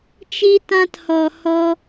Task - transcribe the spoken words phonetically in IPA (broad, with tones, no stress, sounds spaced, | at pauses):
t͡ʃ i˦ t ã˦ t h ɔ˧ h ɔ˦